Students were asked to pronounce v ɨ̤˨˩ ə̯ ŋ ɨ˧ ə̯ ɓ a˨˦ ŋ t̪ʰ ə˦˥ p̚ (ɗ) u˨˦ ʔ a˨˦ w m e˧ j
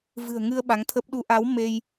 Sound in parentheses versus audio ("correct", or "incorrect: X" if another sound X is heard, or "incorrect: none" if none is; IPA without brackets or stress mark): correct